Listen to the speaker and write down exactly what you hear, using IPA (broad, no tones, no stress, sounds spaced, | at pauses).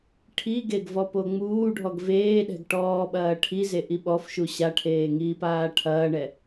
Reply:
ʈʰ i ɡ e ɡ v ɔ p o ŋ͡m uː ɖʱ ɔ ɡ v eː ɗ ɛ̤ ɡ ʈ ɔː ɓ ɐː ʈʰ i z e ʔ i ɓ ɔ f ʃ u ɕ a ʈʰ eː ŋ iː p aː ʈʰ ɐː ɳ ɛ